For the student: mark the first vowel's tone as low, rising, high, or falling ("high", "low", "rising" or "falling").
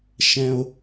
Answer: low